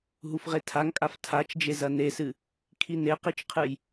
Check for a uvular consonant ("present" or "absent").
present